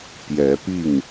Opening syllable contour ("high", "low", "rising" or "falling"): rising